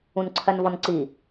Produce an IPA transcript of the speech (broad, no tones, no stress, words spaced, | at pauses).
ũnǀʰɜnvɔnǀi